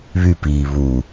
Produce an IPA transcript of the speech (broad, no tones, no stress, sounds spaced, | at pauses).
β y p iː β u